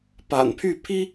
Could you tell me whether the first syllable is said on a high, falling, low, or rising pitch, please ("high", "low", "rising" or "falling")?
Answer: low